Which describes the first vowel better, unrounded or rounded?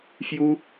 rounded